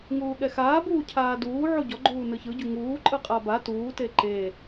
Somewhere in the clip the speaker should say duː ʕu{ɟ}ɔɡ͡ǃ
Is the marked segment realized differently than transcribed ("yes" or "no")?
no